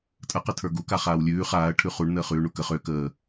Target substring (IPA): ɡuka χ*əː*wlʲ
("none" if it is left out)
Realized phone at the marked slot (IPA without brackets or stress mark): aː